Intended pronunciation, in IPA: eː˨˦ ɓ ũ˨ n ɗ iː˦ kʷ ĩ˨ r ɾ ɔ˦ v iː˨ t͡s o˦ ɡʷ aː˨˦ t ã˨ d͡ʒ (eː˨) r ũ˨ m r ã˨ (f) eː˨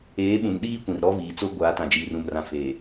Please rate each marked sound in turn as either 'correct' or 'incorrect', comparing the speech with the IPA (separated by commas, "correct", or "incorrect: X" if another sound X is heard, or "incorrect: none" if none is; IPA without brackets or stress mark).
incorrect: iː˨, correct